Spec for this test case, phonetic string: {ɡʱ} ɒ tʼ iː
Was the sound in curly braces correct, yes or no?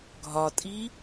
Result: yes